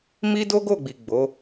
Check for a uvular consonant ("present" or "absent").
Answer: absent